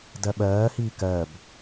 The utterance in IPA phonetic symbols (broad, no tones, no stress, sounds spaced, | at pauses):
d ɜ ɓ ɜː h iː k ɜ b